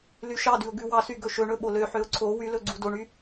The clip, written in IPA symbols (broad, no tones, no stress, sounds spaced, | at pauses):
l y ʃ ɑ d ʉ ʊ̯ ɡ ʉ w ɑ s y ɡ ɵ ʃ ɵ ɳ ɵ ɓ o l ø ħ ø ʊ̯ ǀʰ o w y l ɵ ɡ͡ǀ u d o ɳ y